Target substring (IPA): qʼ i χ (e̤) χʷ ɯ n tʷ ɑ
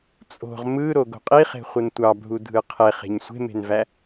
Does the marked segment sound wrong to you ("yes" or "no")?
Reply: no